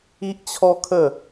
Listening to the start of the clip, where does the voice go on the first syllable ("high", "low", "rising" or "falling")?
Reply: high